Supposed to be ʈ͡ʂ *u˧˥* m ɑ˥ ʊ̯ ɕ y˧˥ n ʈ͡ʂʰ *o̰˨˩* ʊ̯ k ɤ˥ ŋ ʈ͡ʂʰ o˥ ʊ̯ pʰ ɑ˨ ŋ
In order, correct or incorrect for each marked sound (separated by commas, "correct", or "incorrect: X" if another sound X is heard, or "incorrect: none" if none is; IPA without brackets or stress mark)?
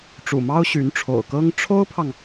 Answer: incorrect: ṵ˨˩, correct